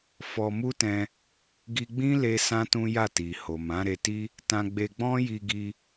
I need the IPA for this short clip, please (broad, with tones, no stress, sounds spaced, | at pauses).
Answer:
f ɔ˧ m u˦ t ɛ̃˧ | ɡ i˧ ɡ͡b ĩ˦ l e˧ s ã˦ t ũ˦ j a˦˨ t i˨ h o˨ m ã˨˦ ɾ e˧ t i˦ | t ã˧ ɡ͡b e˧ ɡ͡b ɔ̃˦ j i˧ ɡ i˧